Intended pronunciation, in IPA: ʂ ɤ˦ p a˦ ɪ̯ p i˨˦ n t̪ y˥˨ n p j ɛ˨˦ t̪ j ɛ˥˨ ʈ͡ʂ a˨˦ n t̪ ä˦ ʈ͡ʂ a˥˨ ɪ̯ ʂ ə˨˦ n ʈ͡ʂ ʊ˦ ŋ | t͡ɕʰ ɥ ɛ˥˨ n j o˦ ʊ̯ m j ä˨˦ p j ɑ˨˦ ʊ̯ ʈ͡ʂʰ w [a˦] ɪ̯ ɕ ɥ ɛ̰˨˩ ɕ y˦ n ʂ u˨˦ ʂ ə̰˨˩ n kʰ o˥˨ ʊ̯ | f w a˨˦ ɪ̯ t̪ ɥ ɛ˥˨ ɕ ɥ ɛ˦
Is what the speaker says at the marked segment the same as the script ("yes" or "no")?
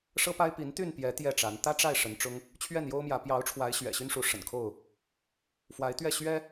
no